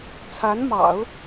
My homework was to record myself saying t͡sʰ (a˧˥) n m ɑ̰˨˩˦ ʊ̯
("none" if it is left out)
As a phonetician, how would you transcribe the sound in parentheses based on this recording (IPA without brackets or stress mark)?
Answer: a˧˥